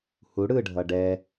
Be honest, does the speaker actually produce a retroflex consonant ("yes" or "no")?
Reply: yes